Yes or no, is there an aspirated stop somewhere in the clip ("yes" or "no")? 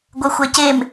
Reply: no